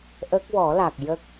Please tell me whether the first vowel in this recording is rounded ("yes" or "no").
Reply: no